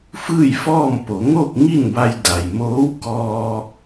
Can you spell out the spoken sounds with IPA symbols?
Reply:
fɯː˥˨jfɔː˥˨m po˩˧ŋoː˥˨k̚ ŋi˥˨nba˧j da˩jmoː˧˥w kɔː˧

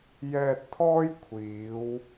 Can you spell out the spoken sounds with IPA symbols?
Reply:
jɛː˧t̚t̪ʰɔː˥jkʷʰiː˨˧w

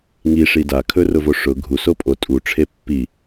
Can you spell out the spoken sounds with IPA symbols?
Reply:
ŋiʂi dakʰɵrʊvo ʂʊ ɡʱuso pʼo tʼuʈ͡ʂʰe pːi

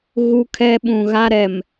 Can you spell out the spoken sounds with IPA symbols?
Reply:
ɣu˦kʰɛ˦ ɓũ˨ ɣa˦ɾɛ˨m

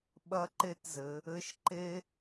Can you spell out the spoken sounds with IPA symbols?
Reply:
ɓɐ˧ǃe˧tzɘ˩˧ | ɘ˧˥ʃǃe˥

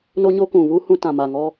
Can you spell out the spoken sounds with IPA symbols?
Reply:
no˦ɲo˦kũ˨ βuː˦hũ˦˨ tã˨ maː˨ ŋɔ˦

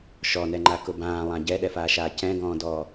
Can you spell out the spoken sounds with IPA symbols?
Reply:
ʃɔnɛŋ͡ǃa kʊbãːlˠã ɟɛɗɛfaːʃaː cɛ̃ɡɔ̃ːdɔː

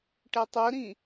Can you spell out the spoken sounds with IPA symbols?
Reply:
ʈɛtˤɵɾĩ

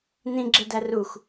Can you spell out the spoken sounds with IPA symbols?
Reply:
nĩɡ͡ǁedær ux

